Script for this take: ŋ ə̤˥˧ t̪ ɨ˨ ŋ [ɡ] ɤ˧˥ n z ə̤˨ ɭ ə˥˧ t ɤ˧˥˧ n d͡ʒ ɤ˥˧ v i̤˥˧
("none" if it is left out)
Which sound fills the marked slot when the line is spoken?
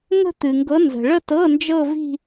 ɡ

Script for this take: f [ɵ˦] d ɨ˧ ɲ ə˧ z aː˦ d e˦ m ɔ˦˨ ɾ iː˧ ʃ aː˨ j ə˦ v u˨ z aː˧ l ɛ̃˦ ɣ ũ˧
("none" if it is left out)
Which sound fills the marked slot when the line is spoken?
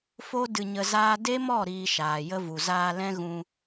o˦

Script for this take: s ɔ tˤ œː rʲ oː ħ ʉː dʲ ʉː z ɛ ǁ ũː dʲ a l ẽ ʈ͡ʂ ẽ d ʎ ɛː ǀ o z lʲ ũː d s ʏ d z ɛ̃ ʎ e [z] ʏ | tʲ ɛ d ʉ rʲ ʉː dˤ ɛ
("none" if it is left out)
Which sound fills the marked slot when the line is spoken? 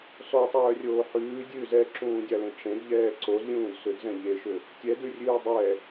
ʃ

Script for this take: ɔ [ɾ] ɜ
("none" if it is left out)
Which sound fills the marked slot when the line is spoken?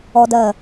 d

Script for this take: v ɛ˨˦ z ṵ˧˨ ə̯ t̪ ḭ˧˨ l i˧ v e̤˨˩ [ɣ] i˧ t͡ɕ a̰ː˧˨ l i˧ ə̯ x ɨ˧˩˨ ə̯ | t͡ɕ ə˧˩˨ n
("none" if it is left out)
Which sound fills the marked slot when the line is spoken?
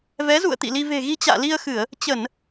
ɣ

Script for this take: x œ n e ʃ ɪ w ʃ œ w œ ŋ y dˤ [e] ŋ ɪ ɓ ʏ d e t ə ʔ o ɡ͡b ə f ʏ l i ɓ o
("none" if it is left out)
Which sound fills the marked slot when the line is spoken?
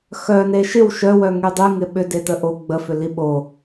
y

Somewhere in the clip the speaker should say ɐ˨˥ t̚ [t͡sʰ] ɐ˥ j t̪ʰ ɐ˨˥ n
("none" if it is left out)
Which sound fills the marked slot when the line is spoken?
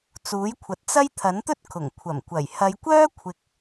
t͡s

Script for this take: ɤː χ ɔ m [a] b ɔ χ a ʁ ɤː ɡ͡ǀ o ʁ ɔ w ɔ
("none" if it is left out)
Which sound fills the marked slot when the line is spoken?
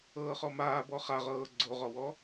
aː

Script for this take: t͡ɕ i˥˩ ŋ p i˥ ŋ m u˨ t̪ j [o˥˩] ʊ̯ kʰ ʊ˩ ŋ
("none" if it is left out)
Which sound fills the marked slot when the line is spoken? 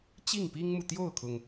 o˥˩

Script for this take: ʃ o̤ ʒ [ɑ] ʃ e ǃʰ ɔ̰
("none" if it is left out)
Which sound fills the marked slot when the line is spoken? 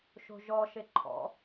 ɔ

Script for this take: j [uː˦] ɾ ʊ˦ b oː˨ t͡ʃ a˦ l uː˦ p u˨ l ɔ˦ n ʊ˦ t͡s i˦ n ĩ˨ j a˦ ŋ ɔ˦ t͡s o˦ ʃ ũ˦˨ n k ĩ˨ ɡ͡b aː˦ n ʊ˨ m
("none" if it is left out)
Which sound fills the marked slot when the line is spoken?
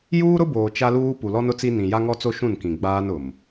uː˦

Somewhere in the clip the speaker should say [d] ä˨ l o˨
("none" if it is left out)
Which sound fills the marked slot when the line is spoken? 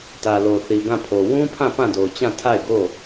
t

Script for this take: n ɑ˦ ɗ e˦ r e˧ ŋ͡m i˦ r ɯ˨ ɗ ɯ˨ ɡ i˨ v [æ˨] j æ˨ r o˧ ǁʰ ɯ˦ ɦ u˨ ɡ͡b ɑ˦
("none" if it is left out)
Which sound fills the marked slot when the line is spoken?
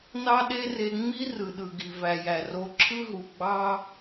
æ˨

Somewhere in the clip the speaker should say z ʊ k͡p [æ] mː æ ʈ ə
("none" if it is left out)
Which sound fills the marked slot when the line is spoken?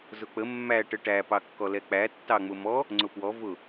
ə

